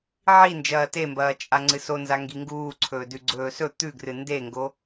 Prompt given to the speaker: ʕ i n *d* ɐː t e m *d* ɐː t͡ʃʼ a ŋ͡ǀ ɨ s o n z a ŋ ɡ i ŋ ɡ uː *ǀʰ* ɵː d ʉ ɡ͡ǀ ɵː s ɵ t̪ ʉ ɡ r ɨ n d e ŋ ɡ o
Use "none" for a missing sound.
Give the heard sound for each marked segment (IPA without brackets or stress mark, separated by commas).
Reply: d͡ʒ, b, ǀʰ